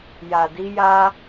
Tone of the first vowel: low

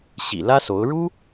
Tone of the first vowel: low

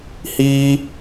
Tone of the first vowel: high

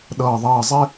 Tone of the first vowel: low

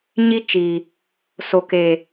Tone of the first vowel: high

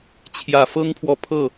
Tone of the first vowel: low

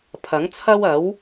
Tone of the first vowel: rising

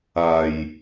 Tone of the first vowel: low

